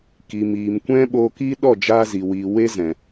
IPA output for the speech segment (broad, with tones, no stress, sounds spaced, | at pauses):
k i˨ m iː˨ m kʷ ɛ̃˦ ɓ oː˧ k iː˦ ɗ ɔ˦˨ d͡ʒ aː˧ z i˨ w i˨ w e˦ z ɛ̃˨